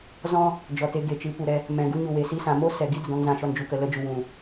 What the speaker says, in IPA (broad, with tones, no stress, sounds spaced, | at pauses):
z ɔ̃˦ | d͡ʒ ɔ˨ t e˧ ɡ e˨ t͡ʃ ɨ˨˦ p u˨ ɾ ɛ˧ | m ɛ̃˨ ɡ u˧ ɲ u˨ w e˨ s i˧ s ã˨ m o˦ s ɛ˨ ɡ i˦ d ə˨ d ɔ̃˧ ŋ z ã˨ ʃ ɔ˧ n d͡ʒ u˨ k ə˨ l ə˧ d͡ʒ u˨ w ũ˨